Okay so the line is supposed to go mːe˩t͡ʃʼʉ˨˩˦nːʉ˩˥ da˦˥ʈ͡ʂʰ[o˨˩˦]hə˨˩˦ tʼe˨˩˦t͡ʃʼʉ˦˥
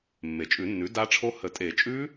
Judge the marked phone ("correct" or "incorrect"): incorrect